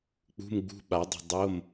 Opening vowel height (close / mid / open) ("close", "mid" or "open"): close